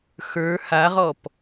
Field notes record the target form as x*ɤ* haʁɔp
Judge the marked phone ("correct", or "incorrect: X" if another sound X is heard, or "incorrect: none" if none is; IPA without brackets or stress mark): incorrect: ə˞